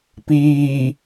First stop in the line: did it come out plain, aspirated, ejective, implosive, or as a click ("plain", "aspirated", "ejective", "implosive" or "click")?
plain